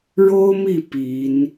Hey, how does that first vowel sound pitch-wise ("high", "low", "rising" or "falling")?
high